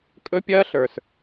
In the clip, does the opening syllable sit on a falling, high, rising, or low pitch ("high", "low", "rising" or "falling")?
high